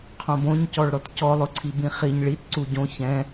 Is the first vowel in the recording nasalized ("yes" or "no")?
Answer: yes